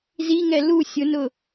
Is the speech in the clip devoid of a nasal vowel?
yes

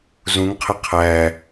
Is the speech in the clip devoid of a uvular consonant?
no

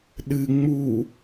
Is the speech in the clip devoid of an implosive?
no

